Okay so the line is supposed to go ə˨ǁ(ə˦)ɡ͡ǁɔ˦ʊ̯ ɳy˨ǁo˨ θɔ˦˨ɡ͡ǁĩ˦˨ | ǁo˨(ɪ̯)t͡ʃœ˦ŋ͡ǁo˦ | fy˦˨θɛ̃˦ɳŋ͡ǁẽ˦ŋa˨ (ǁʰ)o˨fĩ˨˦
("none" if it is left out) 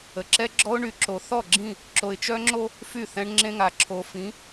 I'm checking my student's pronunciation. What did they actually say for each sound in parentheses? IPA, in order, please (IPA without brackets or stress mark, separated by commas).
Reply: ɛ˦, ɪ̯, ǁʰ